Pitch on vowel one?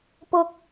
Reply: high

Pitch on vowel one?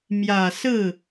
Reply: low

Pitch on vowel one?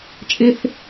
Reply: high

